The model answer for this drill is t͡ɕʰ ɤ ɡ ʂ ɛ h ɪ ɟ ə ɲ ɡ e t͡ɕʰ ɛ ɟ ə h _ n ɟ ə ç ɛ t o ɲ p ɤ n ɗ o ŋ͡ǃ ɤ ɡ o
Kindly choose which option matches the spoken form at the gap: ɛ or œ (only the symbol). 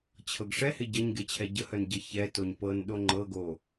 œ